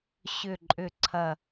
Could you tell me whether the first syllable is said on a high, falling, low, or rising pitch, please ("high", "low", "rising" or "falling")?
falling